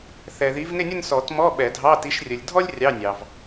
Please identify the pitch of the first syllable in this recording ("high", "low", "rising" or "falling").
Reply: low